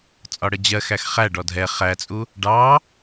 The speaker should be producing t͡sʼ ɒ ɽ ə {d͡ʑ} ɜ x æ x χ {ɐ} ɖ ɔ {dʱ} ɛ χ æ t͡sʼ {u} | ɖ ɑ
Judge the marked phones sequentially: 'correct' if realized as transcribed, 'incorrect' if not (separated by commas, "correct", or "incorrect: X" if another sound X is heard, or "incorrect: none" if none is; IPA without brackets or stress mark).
correct, incorrect: æ, correct, correct